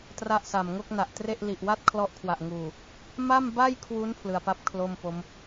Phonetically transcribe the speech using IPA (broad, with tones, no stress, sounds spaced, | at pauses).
t r a˥˩ ʔ s a˨˩ m ŋ o˥˩ k̚ n a˨˩ ʔ t r e˥˩ ʔ l i˨˩ ʔ w a˥˩ t̚ kʰ l ɔ˦˥ ʔ kʰ w a˨˩ ʔ ŋ uː˨˩ | m a˥˩ m b a˥˩ j kʰ w u˦˥ n pʰ l ɯ˧ a̯ p a˥˩ p̚ kʰ l o˥˩ m p o˦˥ m